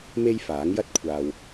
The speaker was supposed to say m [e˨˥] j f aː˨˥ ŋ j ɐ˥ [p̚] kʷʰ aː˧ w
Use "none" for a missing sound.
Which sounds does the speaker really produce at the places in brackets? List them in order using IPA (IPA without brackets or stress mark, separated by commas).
e˥, t̚